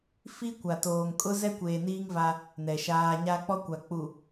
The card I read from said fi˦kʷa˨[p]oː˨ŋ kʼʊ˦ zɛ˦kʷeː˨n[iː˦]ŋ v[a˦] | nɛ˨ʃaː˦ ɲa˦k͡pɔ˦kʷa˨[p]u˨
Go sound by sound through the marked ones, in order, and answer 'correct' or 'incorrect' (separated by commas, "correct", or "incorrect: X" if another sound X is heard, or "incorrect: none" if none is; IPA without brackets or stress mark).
incorrect: t, correct, correct, incorrect: k͡p